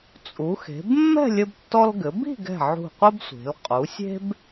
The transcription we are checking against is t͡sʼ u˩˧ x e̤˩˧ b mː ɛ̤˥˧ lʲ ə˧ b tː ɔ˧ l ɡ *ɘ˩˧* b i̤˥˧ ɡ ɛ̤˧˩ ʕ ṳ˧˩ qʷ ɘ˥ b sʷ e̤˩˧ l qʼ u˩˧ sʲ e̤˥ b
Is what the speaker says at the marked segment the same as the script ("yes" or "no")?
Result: yes